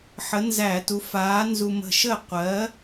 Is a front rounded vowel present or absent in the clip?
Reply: absent